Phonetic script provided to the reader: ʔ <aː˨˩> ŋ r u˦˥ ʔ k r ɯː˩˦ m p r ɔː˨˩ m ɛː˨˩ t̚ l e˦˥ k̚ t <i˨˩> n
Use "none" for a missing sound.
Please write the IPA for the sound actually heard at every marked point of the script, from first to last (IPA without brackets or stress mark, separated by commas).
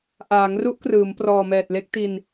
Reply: aː˩˦, i˧